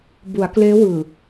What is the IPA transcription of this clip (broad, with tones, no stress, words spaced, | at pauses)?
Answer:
bu˩˦a̯kleː˦˥wɯː˨˩